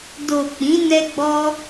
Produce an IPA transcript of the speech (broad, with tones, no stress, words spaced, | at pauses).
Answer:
do˨ k͡pĩ˨˦nɛ˧ɡ͡bɔ˧